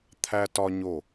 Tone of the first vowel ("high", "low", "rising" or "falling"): high